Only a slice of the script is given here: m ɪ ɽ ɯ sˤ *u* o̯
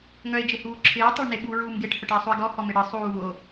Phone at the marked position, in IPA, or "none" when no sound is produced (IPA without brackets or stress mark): uː